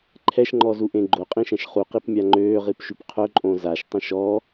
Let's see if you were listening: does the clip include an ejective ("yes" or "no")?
yes